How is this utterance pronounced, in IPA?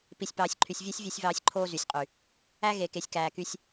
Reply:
p i˨ sʲ p ɑː˨ sʲ ǃʰ y˨ sʲ vʲ ø˦ sʲ vʲ e˦ sʲ v ɑː˦ sʲ ǃʰ oː˦ z y˨ sʲ qʼ y˨ | æ˦ ɣ e˨ k e˨ sʲ k æː˨ k y˦ sʲ

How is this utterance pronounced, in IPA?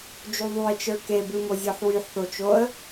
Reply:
d͡ʒ u ðˤ u ɪ̯ t͡ʃ ə˞ k e b ɨ m o zʲ ɔ ħ w y ħ θ o t͡ʃ o ə̯

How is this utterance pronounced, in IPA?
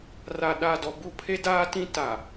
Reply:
r a˨ ɗ a˦˨ d ɔ˨ b u˦˨ pʰ e˦ d aː˦ t ĩ˦ t a˨

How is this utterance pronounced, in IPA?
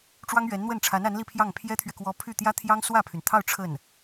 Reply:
ʈ͡ʂ w ɑ˥ ŋ ɥ ɛ˧˥ n n̪ w ə˥˩ n ʈ͡ʂʰ a˧˥ n a˧˥ n l i˥˧ pʰ j ɑ˥˩ ŋ pʰ j ɛ˥ t̪ʰ ɥ ɛ˨ k w ɔ˧˥ pʰ y˥˩ t̪ j ä˥ t̪ʰ j ɑ˥ ŋ s w ä˥˩ pʰ y˩ n t̪ʰ ɑ˥˧ ʊ̯ ʈ͡ʂʰ ə˥˩ n

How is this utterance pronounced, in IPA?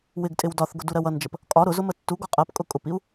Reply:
w ɪ ɡ tʼ ɪ w d ɒ θ ɡ ʊ d u ɾ ɜ w ʌ n d͡ʒ ə p | kʼ ɒ ɾ ʊ z ʊ m ə tː u ɡ ɔ qʼ ɜ p kʼ ʊ kʼ ʊ p i u̯

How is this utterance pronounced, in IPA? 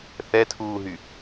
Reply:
θ ɛ tʰ uː ɦ y

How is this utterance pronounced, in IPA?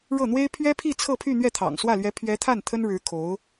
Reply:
ɻ ɤ˥˩ n̪ w e˥ ɪ̯ pʰ ɥ ɛ˥ pʰ i˥˧ t͡sʰ ɤ˥˧ pʰ y˥˧ n̪ ɥ ɛ˥˩ t̪ʰ ɑ̰˨˩ ŋ s w ä˥˩ l ɥ ɛ˧˥ pʰ ɥ ɛ˧˥ t̪ʰ a˥˩ n t̪ʰ ə˥ n ɻ ɻ̩˧˥ kʰ o˧˥ ʊ̯

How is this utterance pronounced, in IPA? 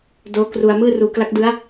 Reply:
d oː˦˥ k r u˧ a̯ m ɯː˥˩ r uː˧ k l a˦˥ k̚ d ɯ˦˥ a̯

